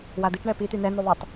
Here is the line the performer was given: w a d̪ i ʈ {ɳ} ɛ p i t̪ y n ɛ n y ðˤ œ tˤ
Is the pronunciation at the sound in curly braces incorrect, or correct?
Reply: correct